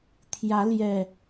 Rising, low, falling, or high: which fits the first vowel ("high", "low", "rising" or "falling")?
rising